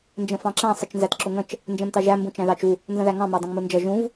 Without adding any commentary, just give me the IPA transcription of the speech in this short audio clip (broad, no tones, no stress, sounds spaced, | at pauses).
n d͡ʒ ə̃ f ɑ̃ ǁ æ̃ sˤ ə t͡ʃ n z æ t ǁ ʊ ŋ ə̃ t͡ʃ | n d͡ʒ ɛ̃ m t ɑ ʒ æ m b ũ t͡ʃ æ̃ ð ɑ t͡ʃ u | n z ə̃ ð æ ŋ ɑ̃ m æ dˤ ə̃ ŋ m u n d͡ʒ ʌ ʒ ũ v